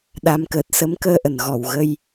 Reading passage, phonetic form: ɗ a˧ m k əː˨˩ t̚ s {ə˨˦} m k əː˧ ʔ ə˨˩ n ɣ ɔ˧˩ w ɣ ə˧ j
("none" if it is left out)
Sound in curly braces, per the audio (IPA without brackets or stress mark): ə˨˦